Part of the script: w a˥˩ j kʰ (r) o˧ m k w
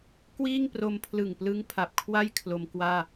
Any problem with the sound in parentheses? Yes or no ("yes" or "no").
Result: yes